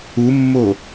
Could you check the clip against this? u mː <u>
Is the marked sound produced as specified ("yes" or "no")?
no